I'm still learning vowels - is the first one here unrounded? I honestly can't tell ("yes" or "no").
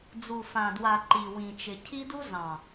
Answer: no